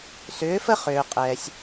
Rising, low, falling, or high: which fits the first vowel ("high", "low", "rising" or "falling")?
rising